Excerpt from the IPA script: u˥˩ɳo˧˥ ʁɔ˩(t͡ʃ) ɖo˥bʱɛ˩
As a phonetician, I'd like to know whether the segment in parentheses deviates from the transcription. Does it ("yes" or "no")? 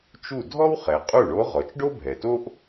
no